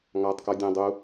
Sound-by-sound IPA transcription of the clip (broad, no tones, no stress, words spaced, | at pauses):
ŋɑtˤkɔ dʲɛ̃ dˤu